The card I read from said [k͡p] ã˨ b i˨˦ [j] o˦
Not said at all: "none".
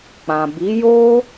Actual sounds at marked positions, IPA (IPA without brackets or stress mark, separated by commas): k͡p, j